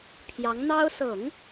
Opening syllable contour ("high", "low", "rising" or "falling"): rising